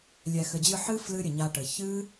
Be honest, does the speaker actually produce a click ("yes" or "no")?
no